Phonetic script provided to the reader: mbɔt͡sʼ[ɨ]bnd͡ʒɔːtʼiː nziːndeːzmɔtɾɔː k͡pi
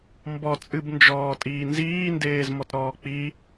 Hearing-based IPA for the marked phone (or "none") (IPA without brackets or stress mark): ɨ